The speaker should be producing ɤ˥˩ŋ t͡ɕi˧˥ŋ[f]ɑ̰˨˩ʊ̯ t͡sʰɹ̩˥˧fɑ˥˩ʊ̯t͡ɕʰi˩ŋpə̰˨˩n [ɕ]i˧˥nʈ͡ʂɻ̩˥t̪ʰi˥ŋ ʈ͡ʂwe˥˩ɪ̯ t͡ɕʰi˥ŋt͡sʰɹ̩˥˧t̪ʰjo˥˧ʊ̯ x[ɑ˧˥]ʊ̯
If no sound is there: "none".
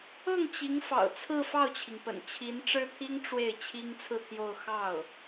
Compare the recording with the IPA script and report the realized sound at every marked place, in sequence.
f, t͡ɕʰ, ɑ˥˩

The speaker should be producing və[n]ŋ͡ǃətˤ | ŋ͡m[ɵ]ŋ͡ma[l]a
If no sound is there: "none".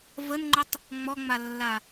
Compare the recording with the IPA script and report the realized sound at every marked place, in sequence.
n, ɔ, lː

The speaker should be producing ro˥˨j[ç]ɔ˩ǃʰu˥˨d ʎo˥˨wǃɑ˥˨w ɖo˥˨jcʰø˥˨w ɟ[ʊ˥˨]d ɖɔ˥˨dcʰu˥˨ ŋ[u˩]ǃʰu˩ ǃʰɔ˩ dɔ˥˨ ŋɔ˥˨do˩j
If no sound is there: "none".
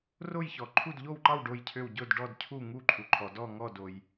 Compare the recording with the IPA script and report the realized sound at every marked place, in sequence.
ç, ʊ˥˨, u˥˨

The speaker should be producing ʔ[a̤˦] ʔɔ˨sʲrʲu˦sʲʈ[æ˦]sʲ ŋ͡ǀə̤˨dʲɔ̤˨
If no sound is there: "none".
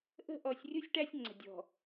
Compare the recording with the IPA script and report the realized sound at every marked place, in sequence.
ə̤˦, æ˦

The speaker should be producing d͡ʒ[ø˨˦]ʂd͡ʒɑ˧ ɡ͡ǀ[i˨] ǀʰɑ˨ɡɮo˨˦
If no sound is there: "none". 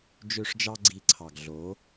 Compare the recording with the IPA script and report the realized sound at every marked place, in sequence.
ø˧, i˨

